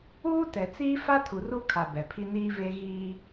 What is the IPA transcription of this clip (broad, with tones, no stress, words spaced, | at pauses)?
uː˦ tɛ˨t͡siː˦ fa˦tʰu˨ ru˦kʰa˨ bɛ˨pʰi˦niː˦ve˦ ɣiː˦